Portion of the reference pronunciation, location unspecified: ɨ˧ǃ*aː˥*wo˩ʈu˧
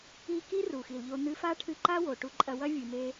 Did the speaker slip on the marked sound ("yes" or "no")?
yes